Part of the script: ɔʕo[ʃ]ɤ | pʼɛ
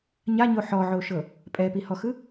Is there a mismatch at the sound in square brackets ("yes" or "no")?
no